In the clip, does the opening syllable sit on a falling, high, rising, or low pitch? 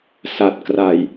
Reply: low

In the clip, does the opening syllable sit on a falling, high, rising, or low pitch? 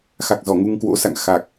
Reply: low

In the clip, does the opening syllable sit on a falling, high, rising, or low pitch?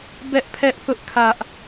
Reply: high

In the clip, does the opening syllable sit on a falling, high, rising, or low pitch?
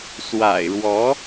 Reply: low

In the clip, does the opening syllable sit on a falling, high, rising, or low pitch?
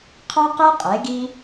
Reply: high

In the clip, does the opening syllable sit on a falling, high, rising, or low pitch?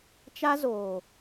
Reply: high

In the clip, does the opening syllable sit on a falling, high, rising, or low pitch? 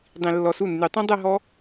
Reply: low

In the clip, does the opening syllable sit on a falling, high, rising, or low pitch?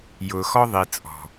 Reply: low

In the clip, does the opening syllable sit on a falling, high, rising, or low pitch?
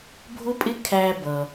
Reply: high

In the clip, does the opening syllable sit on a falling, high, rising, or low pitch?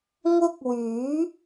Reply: high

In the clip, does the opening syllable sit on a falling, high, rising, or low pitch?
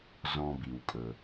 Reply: low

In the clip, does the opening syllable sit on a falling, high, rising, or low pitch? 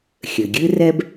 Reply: low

